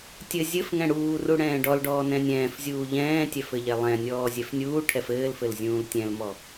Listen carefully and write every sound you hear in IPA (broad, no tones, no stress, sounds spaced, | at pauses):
tʲ ɘ zʲ ɘ f ŋ ɛ̃ ɽ uː r u ɽ ɛ̃ː ɖ ɔ l ɖ ɔː n ɛ̃ nʲ ɛ̃ː f zʲ uː ʎ ɛ̃ː tʲ ɛ f ɘ ʎ ɛ lˠ ɛ̃ nʲ ɔː zʲ ɛ f nʲ uː ʈʰ ɛ f ɘː l f ɘ l zʲ ũː l tʲ ɛ̃ l m ɔ